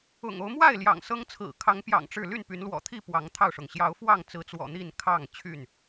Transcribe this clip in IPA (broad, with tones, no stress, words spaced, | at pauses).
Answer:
ʊ̰˨˩ŋo˦ʊ̯ mwa˥˨ɪ̯ ljɑ̰˨˩ŋsɤ˦ŋt͡sʰɹ̩˨˩ kʰɑ˨˦ŋpjɑ̰˨˩ŋ ʈ͡ʂɻ̩˥˨ ly˥˨npy˨˦nlwɔ̰˨˩t̪ʰi˥˨ pwɑ˨˦ŋt̪ʰɑ˥˨ʊ̯ʂʊ˩ŋ ɕjɑ˨˦ʊ̯fwɑ˥˨ŋt͡sɹ̩˨˦t͡swɔ̰˨˩ n̪i˥˨n kʰɑ˥˨ŋ t͡ɕʰy˥˨n